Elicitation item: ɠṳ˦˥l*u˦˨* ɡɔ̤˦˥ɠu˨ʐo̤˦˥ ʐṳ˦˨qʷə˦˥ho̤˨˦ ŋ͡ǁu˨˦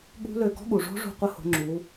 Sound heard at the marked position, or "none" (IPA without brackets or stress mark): ø˦˨